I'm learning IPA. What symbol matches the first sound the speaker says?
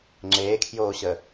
ŋ͡ǁ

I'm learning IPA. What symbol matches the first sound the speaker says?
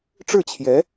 ʈ͡ʂ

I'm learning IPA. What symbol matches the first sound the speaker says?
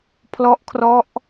pʰ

